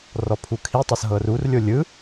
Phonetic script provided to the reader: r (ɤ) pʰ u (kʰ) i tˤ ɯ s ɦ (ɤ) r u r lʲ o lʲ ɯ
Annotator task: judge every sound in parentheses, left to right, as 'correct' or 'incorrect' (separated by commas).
incorrect, correct, correct